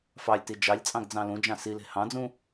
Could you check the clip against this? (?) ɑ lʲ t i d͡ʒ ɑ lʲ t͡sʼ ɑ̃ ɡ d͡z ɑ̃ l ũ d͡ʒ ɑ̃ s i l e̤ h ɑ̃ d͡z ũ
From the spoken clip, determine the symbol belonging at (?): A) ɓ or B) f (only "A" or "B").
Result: B